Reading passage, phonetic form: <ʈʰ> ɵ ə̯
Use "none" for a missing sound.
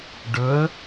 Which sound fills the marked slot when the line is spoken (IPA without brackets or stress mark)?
ɖ